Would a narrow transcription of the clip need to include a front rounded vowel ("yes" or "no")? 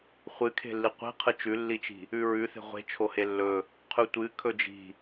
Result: no